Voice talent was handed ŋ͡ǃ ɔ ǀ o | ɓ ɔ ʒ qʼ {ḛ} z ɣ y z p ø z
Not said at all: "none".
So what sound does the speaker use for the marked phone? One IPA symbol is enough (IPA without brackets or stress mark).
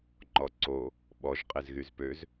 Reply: e